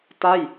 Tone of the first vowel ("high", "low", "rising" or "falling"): falling